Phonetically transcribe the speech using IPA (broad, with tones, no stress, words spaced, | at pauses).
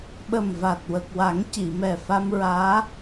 ɓə˨˩mva˨˩t̚ wə˨˩k̚wa˨˩˦ŋci˨˩˨mɛ˨˩ fa˧mɹaː˧˥